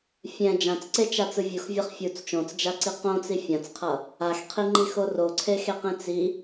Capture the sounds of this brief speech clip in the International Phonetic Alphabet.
fʲ ɛ̃ d͡ʒ ã t͡s ǀ e t͡ʃ a t͡s ɯ vʲ u x vʲ a χ fʲ u t͡s t͡ʃ õ t͡s d͡ʒ a ǀ i q õ t͡s i fʲ ã t͡s qʰ ʌ | a x qʰ i ŋ͡ǃ i x o r o ǀʰ e x e q ẽ t͡s i

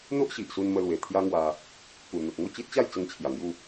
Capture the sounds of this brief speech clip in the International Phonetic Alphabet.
n̪ o˦ ʔ ɕ i˨ ʔ s u˧ n m ə˧ l w e˨˩ t̪ʰ j a˦ ŋ w a˧ | k u˨˩ n̪ u˨ t̚ ŋ o˥˧ t͡ɕ i˦ t̚ t͡ɕ a˥˧ j t͡s ə˧ ŋ t͡ɕʰ j a˨˩ ŋ j u˥˧

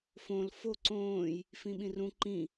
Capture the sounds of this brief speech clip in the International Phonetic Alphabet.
f õ l f o ǀ õː j | f ĩ ɓ ĩ r ũ ǃ ĩ

